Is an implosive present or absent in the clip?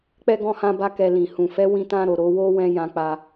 absent